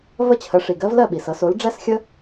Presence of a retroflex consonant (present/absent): present